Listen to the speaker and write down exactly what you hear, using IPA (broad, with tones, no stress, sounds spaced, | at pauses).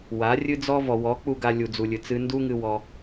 w a˨˦ rʲ ɨ˦ d͡z ɔ˦ v ɔ˨ w ɔ˨˦ k͡p u˦ ɡ a˧ lʲ u˨ d͡z u˨ lʲ ɨ˨ t͡s ɨ˧ n d u˦ ŋ ɨ˧ w ɔ˧